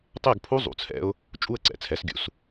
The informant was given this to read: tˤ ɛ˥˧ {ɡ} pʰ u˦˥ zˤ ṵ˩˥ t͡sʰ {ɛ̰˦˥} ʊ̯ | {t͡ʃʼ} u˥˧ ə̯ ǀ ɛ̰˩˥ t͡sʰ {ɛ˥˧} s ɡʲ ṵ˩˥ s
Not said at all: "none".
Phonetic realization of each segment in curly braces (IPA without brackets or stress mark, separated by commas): ɡ, ɛ̰˦˥, t͡ʃʼ, ɛ˩˥